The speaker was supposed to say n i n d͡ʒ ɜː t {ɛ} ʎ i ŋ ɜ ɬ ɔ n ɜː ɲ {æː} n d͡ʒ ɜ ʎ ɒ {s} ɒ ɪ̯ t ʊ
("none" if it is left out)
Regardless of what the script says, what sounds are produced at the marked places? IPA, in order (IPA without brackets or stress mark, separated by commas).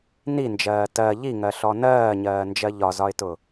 ɜ, ɜː, z